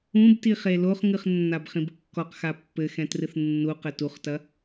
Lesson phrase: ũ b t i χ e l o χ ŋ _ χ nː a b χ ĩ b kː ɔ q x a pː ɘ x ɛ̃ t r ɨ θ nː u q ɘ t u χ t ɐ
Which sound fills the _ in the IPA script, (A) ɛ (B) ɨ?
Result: B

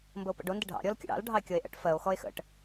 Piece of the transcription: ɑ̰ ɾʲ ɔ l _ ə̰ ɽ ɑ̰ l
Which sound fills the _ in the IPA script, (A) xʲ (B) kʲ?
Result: B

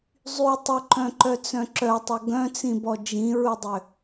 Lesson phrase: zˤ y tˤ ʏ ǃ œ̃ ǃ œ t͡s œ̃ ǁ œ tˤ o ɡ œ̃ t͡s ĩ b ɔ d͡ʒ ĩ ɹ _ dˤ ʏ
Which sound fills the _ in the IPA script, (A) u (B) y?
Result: A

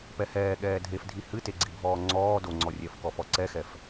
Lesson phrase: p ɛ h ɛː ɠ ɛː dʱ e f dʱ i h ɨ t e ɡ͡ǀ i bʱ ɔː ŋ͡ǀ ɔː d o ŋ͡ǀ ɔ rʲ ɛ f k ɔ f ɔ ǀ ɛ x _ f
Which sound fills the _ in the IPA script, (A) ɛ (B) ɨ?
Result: A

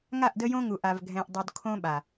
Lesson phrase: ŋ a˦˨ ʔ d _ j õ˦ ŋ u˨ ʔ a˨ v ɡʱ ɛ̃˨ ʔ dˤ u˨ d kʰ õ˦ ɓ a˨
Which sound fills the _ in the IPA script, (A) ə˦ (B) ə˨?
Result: A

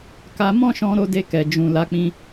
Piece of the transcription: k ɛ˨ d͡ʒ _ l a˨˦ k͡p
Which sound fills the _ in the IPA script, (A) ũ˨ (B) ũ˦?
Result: A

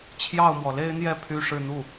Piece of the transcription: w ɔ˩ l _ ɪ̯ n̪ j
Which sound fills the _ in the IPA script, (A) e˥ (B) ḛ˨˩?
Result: A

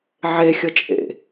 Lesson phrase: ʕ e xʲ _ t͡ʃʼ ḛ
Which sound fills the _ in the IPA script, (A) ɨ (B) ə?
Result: B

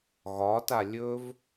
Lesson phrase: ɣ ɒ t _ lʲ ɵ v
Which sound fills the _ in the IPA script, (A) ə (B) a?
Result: B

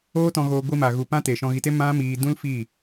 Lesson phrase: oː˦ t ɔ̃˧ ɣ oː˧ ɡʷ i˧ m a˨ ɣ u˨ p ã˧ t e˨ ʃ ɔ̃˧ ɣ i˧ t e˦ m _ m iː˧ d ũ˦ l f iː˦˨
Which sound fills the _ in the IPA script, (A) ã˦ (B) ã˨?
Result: A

